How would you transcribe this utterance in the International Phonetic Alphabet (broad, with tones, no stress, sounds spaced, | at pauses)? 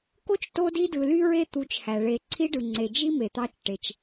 k o˥ t͡ʃ t o˦ d i˦ d ɯ˨ l y˦ ɹ e˦ t̪ u˨ t͡ʃ h æ˩ ɭ e˨ ǀʰ i˥ ɖ ɯ˨ ŋ͡ǀ e˨ d͡ʒ i˥ m e˨ t̪ ɑ˦ t͡ʃ ʈ e˨ t͡ʃ